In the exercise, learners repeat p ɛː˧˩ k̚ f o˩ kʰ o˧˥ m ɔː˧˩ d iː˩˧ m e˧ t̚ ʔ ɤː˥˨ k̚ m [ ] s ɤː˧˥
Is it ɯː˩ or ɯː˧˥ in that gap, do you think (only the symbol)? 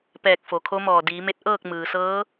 ɯː˩